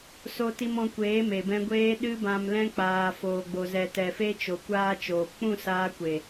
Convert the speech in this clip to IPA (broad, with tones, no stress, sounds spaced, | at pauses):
s o˨ t i˨ m ɔ̃˨ kʷ eː˨˦ m e˨ b ɛ̃˧ ɡʷ eː˧ ɗ ɨ˧ b ã˨ m l ɛ̃˧ k͡p aː˨ f oː˨ ɡ͡b o˨ z ɛ˨ t ɛ˨ f e˧ t͡ʃ o˨ kʷ aː˦ t͡ʃ oː˨ p k͡p ũ˦˨ s aː˧ kʷ e˨